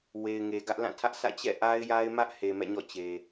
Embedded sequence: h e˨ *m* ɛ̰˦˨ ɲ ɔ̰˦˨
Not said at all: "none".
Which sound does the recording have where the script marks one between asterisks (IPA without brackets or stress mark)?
m